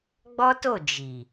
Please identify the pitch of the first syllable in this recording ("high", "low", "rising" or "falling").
high